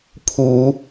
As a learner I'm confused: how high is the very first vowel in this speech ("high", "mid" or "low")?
high